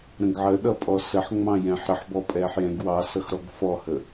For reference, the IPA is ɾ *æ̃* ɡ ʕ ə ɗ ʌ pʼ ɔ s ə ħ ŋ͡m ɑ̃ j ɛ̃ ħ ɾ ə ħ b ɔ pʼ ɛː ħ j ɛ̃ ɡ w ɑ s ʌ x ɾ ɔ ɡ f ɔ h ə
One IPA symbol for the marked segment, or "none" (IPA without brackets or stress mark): ə̃